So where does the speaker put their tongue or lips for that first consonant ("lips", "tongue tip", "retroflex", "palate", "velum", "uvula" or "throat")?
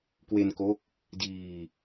velum